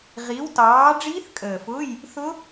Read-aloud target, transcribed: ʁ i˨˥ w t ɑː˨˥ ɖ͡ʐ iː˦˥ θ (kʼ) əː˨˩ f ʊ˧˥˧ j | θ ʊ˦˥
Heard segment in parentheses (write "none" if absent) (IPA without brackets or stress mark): kʼ